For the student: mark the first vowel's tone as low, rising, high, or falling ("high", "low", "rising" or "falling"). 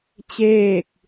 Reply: falling